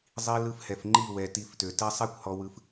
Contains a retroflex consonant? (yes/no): no